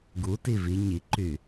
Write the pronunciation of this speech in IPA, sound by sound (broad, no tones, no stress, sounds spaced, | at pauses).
ɡ u t i v i ɲ i ǃ y